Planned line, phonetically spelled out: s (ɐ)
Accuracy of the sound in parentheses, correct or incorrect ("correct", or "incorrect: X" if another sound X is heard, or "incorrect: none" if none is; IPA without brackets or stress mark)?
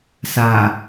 incorrect: a